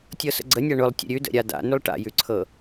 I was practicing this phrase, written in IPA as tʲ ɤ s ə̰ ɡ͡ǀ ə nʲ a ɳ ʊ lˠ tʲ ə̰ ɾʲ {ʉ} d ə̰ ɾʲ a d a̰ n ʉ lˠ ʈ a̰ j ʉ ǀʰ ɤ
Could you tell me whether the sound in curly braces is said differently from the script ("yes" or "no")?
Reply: no